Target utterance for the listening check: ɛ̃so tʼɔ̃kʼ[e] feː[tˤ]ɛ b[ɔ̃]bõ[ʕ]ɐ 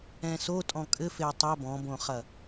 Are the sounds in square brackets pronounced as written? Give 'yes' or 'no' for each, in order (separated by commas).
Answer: no, yes, yes, no